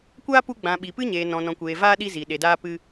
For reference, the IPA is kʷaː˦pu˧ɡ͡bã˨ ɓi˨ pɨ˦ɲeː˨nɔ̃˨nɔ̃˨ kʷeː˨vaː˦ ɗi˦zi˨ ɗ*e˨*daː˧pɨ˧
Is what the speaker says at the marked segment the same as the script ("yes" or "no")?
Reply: yes